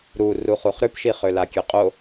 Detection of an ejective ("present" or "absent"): present